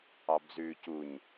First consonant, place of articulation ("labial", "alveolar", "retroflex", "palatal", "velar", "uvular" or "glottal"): labial